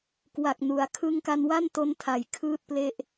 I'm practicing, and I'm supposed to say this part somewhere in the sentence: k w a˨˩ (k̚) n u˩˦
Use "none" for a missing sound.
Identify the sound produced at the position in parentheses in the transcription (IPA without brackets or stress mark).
k̚